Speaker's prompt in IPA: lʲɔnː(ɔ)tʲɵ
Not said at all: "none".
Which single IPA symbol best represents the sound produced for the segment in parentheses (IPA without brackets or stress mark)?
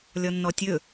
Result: ɔ